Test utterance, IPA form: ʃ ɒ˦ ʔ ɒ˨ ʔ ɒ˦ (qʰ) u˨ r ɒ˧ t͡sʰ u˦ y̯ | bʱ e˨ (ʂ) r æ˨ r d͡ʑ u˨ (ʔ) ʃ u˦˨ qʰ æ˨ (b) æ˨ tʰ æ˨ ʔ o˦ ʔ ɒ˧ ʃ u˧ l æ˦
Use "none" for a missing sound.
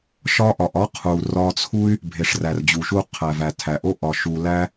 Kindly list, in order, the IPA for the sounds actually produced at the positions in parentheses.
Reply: qʰ, ʂ, none, v

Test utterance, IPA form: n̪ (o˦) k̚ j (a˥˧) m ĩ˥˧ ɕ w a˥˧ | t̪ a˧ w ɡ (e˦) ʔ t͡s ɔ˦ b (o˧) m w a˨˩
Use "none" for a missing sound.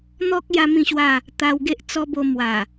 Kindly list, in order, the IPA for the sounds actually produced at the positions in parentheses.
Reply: ɔ˦, a˦, e˦, o˧

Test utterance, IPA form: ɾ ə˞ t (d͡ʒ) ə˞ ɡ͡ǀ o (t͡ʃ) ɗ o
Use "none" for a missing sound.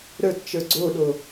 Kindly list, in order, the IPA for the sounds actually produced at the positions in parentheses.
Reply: t͡ʃ, none

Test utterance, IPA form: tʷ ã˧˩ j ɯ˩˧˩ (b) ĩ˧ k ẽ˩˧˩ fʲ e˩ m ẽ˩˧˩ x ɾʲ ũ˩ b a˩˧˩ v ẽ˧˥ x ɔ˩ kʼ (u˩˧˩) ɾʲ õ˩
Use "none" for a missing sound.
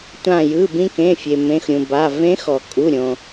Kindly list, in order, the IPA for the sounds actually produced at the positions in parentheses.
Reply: b, u˩˧˩

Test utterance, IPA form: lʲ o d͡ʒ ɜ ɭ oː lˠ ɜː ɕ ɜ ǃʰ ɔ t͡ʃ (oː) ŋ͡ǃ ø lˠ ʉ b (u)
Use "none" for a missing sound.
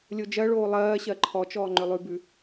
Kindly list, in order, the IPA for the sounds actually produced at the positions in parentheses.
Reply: ɔː, ʉ

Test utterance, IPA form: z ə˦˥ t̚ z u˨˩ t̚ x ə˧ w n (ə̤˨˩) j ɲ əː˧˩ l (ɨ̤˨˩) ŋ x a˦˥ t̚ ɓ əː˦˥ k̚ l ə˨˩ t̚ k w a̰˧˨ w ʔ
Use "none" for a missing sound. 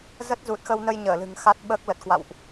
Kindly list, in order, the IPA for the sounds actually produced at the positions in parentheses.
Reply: ə˧, ɨ̤˨˩

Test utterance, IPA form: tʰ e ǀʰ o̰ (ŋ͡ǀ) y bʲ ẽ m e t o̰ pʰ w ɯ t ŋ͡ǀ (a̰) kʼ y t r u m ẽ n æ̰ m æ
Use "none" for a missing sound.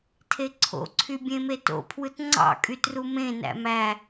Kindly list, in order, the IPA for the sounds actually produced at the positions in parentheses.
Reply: ǀʰ, ɑ̰

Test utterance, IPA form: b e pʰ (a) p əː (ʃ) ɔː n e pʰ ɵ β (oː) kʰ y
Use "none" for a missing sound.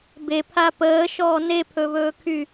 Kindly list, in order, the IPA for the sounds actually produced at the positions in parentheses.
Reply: a, ʃ, ɵː

